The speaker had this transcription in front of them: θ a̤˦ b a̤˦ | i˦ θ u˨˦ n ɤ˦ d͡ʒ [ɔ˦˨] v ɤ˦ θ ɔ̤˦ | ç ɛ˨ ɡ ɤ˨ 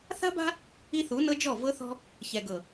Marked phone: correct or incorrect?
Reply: correct